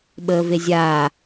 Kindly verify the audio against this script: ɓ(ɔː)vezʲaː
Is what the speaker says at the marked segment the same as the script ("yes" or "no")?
no